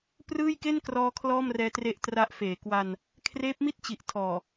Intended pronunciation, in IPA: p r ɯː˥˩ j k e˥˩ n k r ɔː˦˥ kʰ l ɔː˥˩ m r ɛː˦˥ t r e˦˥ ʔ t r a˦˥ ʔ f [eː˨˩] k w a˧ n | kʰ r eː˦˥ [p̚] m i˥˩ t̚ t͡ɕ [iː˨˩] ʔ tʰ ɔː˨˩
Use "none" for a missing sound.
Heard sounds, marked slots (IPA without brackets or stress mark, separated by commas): eː˨˩, p̚, i˨˩